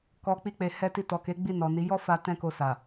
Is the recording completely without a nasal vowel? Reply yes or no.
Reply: no